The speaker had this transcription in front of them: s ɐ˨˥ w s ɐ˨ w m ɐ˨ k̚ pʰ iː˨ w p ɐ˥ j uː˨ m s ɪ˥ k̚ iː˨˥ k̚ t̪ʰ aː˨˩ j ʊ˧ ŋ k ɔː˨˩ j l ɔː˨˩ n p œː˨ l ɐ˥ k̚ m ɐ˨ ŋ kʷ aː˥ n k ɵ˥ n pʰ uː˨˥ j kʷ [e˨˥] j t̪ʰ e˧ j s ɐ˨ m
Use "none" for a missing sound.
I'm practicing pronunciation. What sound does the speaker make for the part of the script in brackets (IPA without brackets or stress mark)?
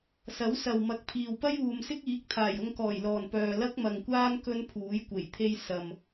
e˨˩